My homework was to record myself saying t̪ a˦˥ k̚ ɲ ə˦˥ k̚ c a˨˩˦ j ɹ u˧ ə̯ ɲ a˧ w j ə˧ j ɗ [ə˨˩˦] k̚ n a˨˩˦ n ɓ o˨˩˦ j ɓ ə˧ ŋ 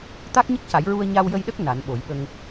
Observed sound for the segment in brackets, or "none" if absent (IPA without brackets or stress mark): ə˦˥